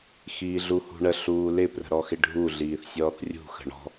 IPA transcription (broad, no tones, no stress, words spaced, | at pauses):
xiːɮuhṳɳə ɬuːlɪ prə̤ɾɔxɪɖʱu ɮiːθsʲɔːθrʲṳ xə̤ɳɔ̤